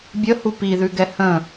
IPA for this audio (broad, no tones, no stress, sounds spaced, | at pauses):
bʲ ə h u p i ð ʉ ɡ ɛ h ə̃